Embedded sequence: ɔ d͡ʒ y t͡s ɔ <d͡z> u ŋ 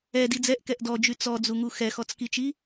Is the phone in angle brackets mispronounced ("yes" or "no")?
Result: no